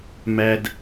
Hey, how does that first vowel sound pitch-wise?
high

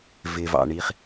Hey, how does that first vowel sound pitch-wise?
low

